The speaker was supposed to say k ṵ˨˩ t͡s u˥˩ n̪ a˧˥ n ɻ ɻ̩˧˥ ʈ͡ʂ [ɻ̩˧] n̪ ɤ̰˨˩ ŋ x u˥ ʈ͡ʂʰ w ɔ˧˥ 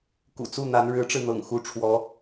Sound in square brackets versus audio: correct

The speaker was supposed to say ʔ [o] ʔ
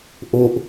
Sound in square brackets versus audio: correct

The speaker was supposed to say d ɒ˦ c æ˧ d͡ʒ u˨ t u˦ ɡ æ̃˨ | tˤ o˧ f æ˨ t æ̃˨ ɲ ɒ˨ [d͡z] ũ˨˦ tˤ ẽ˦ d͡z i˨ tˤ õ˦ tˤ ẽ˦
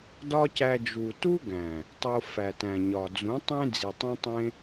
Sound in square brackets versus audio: correct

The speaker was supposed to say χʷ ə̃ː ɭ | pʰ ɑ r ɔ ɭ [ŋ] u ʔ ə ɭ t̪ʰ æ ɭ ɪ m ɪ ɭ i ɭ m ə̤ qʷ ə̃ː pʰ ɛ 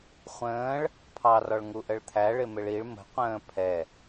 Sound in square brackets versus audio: correct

